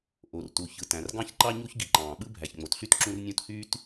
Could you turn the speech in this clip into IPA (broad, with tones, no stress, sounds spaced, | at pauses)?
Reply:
ʔ o˩ r t u˩ ç ɯ˩ t æ̃˩ r ɡ ɑ̃˥ ç ǃ ɑ˥ ɲ u˥ ç ɡ i˩ ǃ ɑ̃ː˩ ɓ ɯ˥ bʱ æ˩ ç ŋ͡m o˩ t ɬ y˥ t ǁ ũ˥ r nʲ ũ˥ t h yː˥ t